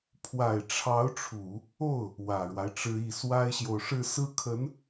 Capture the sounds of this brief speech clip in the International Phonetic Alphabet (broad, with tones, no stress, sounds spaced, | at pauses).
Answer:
pʰ w a˨˩ ɪ̯ ʈ͡ʂʰ ɑ˧˥ ʊ̯ ʈ͡ʂʰ u˨˩˦ | o˥˩ ʊ̯ | w ä˨˩ ɻ w a˦ ɪ̯ ʈ͡ʂ ɻ̩˥ i˥˩ s w a˥ ɪ̯ ɕ j o˨ ʊ̯ ʂ ɻ̩˥˧ s ɹ̩˥˩ kʰ ə˧˥ n